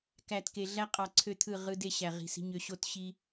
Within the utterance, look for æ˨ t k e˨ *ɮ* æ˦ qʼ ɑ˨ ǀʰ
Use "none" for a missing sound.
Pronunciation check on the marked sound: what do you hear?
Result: ɮ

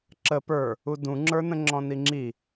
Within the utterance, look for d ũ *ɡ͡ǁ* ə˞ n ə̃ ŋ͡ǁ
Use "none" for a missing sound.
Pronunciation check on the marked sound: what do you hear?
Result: ŋ͡ǁ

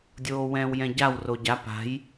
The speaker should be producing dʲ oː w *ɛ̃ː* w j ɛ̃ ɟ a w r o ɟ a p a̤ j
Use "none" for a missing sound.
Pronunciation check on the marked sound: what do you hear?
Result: ɛ̃ː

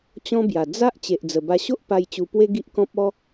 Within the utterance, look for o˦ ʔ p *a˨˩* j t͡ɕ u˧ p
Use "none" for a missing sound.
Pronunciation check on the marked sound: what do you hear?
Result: a˧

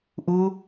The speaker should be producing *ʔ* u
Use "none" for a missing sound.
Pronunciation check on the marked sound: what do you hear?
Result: ʔ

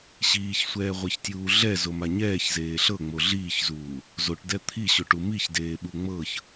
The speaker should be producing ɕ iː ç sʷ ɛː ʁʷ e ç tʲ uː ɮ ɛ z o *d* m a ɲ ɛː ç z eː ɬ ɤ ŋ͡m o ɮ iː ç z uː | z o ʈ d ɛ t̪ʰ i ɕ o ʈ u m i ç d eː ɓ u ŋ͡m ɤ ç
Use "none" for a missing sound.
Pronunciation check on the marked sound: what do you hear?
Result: none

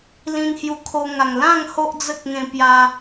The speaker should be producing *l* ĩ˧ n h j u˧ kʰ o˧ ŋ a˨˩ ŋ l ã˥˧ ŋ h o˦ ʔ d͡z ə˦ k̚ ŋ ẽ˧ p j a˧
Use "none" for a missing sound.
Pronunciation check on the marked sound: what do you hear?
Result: l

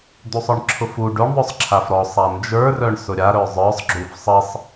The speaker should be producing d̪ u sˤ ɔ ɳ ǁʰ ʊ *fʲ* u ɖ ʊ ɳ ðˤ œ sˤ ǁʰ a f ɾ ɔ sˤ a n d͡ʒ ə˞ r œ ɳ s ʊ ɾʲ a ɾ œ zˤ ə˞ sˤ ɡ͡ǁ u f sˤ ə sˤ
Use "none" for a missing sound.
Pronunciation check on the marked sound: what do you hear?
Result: f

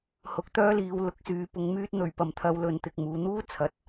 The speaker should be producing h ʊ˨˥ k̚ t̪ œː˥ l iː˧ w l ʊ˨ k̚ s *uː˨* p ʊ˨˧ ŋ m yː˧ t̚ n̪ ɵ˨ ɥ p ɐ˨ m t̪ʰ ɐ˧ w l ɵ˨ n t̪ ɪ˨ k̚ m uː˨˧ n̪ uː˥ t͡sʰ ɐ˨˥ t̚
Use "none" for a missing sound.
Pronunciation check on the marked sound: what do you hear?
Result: yː˨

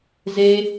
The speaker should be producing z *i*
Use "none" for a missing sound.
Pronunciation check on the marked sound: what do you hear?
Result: e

